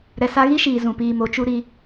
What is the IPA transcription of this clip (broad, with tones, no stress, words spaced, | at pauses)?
ɾɛ˨sa˧ɣi˦ʃiː˨ zũ˨piː˧mo˨˦ t͡ʃu˧ ɾi˧